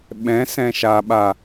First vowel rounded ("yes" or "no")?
no